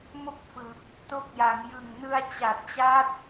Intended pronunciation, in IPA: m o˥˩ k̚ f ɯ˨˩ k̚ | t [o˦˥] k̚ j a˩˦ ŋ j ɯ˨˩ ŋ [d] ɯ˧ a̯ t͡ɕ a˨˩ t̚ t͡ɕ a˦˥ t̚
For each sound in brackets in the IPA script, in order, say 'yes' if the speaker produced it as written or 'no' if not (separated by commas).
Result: yes, no